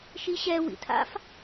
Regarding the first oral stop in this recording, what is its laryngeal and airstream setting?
aspirated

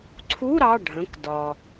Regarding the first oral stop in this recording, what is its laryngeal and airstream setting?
click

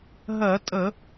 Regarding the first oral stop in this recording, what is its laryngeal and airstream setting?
ejective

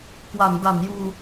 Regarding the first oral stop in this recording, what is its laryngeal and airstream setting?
plain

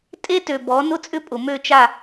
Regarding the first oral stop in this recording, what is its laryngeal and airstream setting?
ejective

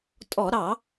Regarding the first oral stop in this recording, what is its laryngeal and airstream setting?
ejective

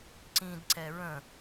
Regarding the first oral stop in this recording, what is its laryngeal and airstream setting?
click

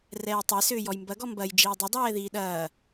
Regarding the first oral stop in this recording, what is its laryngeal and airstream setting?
plain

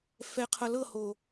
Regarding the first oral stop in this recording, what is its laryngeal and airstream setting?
aspirated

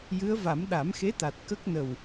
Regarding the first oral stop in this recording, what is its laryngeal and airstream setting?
implosive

